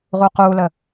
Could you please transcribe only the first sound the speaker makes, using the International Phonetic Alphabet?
ʁ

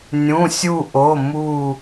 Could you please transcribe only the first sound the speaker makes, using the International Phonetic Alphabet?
nʲ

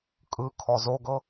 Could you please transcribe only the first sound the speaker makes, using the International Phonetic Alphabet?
kʼ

